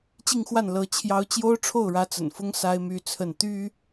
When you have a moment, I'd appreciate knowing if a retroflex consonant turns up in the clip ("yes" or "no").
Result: yes